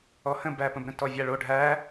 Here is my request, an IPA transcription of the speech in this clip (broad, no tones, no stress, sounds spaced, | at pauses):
ɔ h ə̃ b æ p ə̃ b ɾ ə̃ t ɔ vʲ a ɭ o ɖʱ æ